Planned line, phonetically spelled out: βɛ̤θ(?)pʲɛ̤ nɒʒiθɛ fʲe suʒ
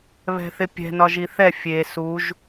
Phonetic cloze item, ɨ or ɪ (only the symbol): ɪ